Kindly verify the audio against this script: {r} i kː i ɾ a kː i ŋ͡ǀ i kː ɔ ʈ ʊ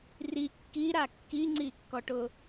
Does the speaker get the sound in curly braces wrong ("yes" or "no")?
no